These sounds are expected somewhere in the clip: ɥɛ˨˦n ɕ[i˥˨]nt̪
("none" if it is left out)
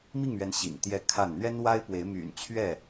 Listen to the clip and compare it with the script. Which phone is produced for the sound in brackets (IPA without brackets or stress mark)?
ḭ˨˩